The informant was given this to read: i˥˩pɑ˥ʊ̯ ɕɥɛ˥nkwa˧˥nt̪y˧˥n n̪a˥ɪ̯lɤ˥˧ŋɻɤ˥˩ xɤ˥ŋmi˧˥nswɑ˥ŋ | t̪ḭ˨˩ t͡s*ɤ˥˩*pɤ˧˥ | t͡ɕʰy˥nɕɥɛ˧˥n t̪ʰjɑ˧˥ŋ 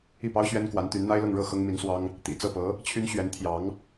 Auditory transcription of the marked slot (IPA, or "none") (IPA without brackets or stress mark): ɤ˥˩